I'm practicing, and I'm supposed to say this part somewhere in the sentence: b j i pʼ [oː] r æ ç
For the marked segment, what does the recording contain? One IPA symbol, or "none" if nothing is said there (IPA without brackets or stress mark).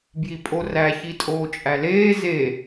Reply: o